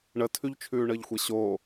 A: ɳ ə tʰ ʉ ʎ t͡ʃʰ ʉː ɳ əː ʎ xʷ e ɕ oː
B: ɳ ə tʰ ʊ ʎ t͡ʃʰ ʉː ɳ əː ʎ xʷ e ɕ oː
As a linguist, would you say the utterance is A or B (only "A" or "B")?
A